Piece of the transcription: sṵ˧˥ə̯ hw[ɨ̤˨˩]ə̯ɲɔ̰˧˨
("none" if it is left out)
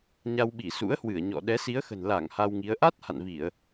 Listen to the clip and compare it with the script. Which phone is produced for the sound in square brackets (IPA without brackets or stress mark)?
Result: ɨ˧˩